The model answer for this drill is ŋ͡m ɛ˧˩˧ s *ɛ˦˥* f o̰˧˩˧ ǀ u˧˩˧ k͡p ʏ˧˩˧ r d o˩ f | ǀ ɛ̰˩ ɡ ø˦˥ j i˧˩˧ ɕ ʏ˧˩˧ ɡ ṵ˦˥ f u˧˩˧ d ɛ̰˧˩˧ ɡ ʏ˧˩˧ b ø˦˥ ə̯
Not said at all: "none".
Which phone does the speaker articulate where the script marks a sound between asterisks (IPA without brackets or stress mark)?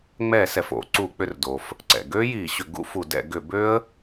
ɛ˩